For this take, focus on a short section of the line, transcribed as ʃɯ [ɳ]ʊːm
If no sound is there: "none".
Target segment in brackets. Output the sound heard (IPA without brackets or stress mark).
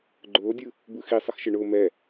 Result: ɳ